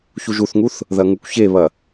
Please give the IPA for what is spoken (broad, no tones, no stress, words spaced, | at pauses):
çuʒuθŋuθ | ðɐŋukʷçeβɐ